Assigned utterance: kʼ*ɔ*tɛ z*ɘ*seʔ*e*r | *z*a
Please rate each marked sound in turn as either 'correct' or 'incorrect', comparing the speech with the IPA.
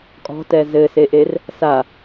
incorrect: ɔ̤, correct, correct, incorrect: s

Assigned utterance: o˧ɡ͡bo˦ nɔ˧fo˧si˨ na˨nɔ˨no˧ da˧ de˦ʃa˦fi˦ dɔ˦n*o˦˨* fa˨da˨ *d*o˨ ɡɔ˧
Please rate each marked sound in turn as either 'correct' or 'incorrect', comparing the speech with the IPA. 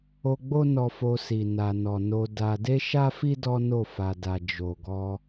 correct, incorrect: d͡ʒ

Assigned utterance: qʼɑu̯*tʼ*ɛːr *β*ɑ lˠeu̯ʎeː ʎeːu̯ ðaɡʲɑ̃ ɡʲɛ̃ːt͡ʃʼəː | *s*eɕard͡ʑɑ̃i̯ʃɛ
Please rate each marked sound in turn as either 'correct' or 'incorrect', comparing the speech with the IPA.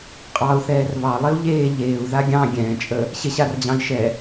incorrect: θ, correct, incorrect: ɕ

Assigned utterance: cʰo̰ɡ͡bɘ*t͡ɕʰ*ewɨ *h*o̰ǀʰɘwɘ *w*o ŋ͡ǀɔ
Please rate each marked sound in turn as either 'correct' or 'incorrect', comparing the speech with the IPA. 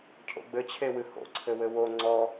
correct, correct, correct

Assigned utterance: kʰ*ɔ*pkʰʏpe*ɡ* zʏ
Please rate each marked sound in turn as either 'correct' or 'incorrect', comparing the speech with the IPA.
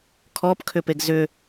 correct, correct

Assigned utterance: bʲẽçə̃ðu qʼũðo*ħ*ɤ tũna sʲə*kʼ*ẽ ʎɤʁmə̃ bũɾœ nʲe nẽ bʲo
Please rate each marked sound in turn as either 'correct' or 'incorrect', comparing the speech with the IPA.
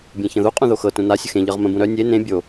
incorrect: x, incorrect: x

